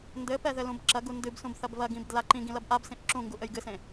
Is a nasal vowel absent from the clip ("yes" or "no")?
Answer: no